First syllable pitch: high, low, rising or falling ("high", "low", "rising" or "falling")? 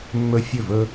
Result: high